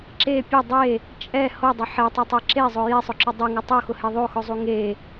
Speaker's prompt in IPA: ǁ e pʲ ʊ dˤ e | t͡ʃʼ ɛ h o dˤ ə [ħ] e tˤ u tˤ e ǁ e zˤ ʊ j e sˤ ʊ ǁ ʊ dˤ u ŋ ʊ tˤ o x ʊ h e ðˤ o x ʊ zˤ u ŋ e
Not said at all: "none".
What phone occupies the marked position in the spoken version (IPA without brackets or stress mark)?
ħ